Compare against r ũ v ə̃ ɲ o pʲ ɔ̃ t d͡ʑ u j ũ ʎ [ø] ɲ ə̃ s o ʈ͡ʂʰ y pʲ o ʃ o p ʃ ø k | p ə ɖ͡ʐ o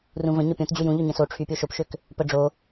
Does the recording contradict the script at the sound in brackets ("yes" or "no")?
no